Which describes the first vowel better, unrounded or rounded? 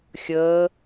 unrounded